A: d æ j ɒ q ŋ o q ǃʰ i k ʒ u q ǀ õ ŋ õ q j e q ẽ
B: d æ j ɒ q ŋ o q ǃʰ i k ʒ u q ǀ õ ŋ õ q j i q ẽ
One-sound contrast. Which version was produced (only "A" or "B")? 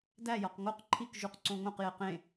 A